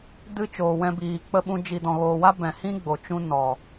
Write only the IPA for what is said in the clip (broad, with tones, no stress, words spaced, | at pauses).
dɨ˦t͡ʃoː˨wɛ̃˧biː˨ k͡pə˧ɓũ˧ d͡ʒi˨dɔ̃˨ɣoː˨wa˦ bɛ̃˨hĩ˦ ɡ͡bo˨t͡ʃũ˦ nɔ˨